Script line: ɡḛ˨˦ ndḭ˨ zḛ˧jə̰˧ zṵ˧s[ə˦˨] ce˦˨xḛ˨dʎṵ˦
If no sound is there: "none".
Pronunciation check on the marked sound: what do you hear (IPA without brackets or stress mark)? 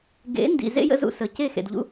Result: ə˧